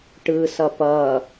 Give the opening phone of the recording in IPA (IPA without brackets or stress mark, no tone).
ʈ